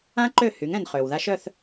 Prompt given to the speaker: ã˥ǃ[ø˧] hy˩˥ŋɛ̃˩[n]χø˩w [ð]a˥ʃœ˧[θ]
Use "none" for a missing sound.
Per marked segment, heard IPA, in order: ø˥˩, n, ð, θ

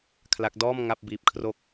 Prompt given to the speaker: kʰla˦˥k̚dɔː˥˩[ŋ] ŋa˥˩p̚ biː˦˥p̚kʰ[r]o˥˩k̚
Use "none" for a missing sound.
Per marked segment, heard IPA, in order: m, r

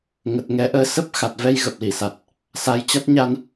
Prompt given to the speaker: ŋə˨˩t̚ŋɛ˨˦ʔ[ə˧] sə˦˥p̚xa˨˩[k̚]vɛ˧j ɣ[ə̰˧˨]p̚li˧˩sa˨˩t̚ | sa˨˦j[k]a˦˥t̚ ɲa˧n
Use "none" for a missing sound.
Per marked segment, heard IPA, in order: əː˧, t̚, ə˨˩, t͡ɕ

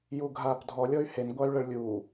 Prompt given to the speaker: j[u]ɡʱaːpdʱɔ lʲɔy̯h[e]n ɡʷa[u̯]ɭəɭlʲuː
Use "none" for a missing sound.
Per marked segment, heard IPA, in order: u, e, y̯

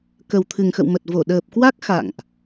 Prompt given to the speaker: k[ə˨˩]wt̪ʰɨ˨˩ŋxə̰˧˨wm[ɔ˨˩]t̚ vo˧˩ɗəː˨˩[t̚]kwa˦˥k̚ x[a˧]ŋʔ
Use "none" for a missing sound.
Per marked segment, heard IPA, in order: ə˨˩, ə˨˩, p̚, a̰˧˨

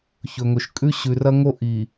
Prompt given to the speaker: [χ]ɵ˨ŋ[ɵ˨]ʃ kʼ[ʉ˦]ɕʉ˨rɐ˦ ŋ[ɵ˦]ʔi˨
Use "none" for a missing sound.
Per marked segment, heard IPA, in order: ç, ɵ˨, ʉ˦, o˦

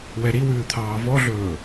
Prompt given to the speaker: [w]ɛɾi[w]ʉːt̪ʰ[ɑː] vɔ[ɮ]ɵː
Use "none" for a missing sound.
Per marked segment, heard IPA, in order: w, w, ɑː, ɮ

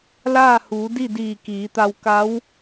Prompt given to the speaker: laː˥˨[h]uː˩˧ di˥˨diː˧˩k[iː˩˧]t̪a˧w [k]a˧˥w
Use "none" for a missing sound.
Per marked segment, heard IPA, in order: h, iː˩˧, k

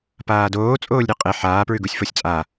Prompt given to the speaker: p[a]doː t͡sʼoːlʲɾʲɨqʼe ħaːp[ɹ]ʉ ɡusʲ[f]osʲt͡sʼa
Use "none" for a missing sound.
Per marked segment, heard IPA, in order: aː, ɹ, f

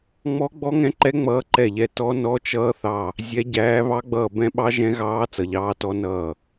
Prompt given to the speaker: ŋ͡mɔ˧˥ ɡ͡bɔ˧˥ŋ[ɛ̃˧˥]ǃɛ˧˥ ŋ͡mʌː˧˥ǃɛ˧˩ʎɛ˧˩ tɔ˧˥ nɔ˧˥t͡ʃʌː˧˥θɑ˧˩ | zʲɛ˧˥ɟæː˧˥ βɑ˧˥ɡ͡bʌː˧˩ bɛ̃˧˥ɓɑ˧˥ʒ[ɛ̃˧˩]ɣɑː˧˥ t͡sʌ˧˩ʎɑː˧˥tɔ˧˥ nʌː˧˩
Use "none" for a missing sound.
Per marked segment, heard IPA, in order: ɛ̃˧˥, ɛ̃˧˥

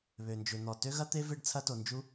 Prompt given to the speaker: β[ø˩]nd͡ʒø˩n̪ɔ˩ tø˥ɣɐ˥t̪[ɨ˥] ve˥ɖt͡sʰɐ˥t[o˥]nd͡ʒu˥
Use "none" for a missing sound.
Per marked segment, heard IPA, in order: ø˩, e˥, o˩

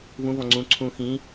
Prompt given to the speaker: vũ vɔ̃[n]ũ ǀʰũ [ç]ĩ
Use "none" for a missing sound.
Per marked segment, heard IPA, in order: ŋ͡ǀ, x

